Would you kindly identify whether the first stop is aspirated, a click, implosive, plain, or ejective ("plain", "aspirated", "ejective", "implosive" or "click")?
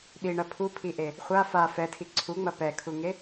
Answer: implosive